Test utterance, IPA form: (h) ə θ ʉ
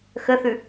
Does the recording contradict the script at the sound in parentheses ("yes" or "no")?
yes